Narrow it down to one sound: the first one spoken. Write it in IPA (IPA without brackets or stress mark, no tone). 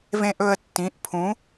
v